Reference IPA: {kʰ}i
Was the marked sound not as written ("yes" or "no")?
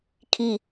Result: no